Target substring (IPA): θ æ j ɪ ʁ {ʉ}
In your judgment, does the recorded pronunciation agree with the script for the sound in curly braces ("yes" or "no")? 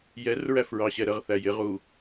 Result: no